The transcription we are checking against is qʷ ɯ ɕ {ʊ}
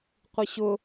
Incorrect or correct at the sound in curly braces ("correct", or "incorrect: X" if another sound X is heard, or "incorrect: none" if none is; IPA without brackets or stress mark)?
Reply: correct